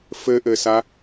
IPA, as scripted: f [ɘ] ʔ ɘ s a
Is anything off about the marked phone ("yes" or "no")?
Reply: no